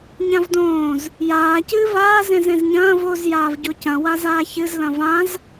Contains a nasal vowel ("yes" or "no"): yes